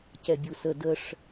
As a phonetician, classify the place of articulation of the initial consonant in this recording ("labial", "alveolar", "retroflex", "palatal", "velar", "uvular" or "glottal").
palatal